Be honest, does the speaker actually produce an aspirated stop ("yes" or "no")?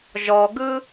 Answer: no